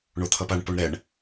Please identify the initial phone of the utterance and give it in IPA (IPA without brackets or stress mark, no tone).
ɳ